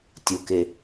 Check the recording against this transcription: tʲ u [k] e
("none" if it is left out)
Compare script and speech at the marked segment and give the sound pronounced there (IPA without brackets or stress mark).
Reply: k